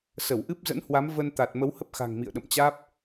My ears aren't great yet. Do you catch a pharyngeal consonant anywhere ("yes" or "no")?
no